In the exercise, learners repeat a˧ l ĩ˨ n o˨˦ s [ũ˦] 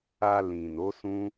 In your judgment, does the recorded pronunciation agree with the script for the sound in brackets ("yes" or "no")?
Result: yes